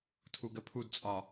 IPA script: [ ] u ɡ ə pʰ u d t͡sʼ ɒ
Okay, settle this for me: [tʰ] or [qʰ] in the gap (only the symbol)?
tʰ